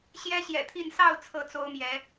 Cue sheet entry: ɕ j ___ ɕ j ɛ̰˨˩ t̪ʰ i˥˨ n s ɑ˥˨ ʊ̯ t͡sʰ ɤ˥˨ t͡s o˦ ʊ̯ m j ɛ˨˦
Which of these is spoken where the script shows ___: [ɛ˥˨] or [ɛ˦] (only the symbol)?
ɛ˦